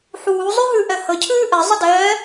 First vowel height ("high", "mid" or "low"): high